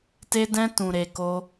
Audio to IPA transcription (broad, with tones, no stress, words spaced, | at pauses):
te˦dɛ̃˦ tũ˧ɾe˧ko˦